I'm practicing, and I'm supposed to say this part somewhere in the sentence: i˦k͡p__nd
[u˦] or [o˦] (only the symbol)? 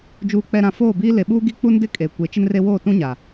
u˦